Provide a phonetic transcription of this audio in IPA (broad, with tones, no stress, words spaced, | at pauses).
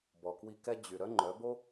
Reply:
bɔ˨kwi˧kɛ˦ d͡ʑy˨ ɾœ˦ŋ͡ǃœ˨˦ bo˦